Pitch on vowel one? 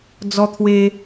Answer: high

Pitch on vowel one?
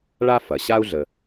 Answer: high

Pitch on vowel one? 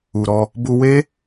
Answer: low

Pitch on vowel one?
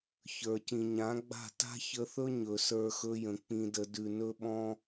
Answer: low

